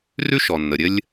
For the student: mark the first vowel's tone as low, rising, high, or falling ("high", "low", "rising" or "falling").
high